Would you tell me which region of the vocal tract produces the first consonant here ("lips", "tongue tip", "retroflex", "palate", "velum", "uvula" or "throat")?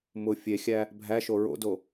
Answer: lips